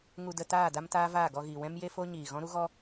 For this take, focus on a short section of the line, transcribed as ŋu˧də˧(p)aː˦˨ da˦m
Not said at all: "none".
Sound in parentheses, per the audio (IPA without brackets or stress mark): t